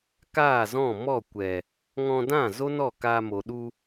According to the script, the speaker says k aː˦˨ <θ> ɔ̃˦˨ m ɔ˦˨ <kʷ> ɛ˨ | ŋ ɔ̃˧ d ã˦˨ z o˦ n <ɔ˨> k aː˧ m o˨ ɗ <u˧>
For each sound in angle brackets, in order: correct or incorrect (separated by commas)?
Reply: incorrect, correct, incorrect, correct